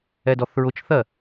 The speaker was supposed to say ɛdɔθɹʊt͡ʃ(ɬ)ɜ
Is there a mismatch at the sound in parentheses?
yes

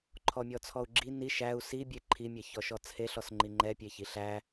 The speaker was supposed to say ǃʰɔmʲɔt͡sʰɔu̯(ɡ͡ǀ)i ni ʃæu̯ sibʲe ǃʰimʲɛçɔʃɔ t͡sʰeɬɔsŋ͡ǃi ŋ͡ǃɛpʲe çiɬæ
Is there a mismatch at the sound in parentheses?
yes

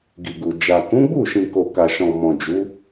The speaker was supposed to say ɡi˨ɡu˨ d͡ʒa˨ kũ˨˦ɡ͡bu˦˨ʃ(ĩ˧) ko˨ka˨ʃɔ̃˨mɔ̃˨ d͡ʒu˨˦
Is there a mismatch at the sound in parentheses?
yes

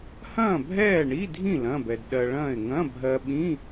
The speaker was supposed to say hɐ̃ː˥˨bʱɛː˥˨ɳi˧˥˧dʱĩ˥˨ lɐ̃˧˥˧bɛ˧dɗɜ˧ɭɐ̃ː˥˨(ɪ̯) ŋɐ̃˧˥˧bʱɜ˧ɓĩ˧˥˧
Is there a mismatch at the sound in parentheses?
no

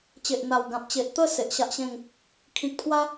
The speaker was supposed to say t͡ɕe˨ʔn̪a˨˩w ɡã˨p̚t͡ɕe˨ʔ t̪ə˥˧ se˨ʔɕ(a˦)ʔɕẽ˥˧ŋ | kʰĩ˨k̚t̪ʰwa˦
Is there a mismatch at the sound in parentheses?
no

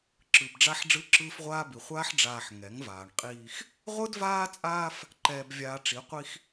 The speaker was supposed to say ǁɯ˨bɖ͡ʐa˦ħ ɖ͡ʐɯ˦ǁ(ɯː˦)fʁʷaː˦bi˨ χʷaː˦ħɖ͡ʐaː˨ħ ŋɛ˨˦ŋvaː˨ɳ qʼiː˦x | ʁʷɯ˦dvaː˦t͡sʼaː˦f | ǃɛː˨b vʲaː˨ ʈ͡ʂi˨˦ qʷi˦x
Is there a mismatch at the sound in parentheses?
no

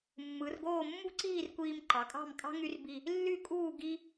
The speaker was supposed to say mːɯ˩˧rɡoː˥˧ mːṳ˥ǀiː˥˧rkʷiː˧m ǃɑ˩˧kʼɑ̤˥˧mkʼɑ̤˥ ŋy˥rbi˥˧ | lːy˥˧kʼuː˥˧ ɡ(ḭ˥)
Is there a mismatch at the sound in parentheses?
yes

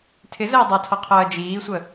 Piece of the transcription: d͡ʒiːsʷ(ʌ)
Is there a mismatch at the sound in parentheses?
yes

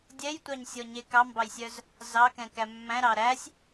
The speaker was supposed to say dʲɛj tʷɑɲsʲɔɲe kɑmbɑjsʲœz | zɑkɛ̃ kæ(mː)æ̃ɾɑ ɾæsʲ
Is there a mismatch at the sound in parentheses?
no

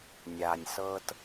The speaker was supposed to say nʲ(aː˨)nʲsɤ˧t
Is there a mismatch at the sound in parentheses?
no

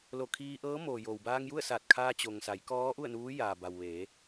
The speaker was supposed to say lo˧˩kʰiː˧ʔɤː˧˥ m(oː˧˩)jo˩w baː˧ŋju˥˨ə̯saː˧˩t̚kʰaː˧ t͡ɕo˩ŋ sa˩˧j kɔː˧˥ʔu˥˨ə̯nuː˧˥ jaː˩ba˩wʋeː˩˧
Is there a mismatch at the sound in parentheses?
yes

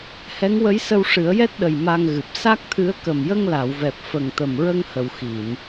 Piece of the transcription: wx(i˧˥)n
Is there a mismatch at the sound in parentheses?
yes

